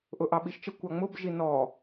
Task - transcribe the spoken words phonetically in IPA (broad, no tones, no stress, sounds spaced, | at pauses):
ʔ ʊ ʔ ɑ ɓ i ʃ t͡ʃ ə kʷ ɑ ŋ͡m ʊ b ʒ i n ɔ